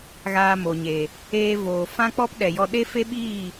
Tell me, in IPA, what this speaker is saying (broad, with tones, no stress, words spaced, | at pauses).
ɣaː˧mo˨ɲe˨ | eː˧voː˨ fã˦ k͡pɔ˦p ɗɛ˨jɔ˧ɗe˦fe˦ ɓiː˦˨